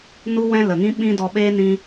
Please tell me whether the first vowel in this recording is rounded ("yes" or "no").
yes